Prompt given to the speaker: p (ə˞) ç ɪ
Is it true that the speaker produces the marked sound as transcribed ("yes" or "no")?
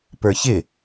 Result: yes